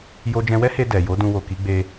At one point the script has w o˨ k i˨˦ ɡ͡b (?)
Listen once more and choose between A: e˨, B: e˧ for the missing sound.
B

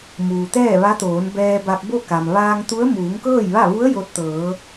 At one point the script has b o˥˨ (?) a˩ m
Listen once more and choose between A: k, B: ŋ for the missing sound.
A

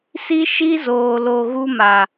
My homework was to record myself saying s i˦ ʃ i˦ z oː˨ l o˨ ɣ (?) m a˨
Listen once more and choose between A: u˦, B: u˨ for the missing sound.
A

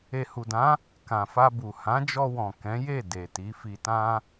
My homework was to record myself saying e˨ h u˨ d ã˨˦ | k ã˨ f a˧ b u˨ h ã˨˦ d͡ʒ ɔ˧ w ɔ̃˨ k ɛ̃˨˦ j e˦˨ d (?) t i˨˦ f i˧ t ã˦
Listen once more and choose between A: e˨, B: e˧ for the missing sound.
A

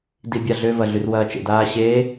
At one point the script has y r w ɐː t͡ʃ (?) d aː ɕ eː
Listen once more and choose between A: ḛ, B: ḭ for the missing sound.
A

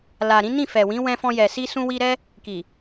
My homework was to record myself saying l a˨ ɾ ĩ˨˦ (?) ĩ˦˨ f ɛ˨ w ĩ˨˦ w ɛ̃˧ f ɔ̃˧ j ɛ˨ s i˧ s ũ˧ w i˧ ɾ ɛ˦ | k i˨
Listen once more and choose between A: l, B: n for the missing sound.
B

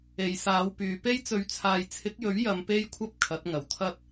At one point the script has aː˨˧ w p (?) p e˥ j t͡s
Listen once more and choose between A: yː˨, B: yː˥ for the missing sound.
A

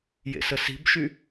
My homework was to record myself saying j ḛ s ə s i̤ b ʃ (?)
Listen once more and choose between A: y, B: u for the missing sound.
A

